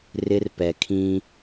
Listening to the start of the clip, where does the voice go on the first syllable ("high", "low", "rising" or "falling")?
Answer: high